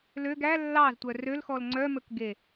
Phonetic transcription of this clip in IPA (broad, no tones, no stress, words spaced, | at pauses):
løɡ æ lːɑztʷœ rølxɔl ŋ͡ǀœmɵkɡe